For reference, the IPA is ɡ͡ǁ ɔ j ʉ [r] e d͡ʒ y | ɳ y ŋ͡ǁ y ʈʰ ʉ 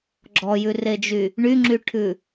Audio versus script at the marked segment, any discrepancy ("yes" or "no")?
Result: no